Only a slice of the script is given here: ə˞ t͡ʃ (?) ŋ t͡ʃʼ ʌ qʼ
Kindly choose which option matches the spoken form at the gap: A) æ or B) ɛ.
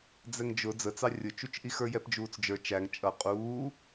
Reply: A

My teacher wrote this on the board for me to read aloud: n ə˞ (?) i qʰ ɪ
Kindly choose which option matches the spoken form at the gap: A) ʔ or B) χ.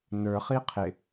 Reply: B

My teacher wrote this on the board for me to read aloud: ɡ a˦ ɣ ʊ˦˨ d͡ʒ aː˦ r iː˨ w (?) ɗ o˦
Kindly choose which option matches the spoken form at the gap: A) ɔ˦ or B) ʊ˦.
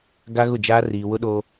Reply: B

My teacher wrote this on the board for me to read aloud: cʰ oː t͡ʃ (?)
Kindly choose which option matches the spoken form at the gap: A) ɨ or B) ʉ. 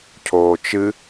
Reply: A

